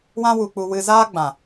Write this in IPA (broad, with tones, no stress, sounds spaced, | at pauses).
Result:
w ã˦ w u˧ k͡p u˧ w ɨ˧ z aː˦ ɡ͡b ã˨